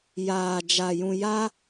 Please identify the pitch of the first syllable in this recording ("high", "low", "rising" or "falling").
low